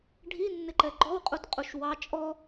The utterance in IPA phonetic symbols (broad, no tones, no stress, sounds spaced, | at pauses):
ɖʱ i nː ɪ ǃ ɛ ɡ͡ǃ ɔ w qʼ u t qʼ u ʃ w ɑ t͡ʃʼ ɔ